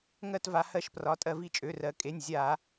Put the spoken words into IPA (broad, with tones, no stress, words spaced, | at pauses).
ŋɜ˦˨tva˩˧ hɜ˧˩˧ʃprɒ˩˧tʼɜ˧˩˧vi˦˨ t͡ʃʼø˩˧˩rɜ˩˧kʼe˩˧˩nʲ zʲa˧˩˧